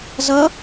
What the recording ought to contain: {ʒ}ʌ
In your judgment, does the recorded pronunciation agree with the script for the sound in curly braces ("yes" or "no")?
no